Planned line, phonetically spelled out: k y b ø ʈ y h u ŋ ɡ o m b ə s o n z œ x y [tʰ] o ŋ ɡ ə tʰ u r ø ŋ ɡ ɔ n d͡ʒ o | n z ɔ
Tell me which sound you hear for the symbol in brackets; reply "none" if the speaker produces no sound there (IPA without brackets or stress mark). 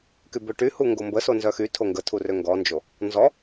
tʰ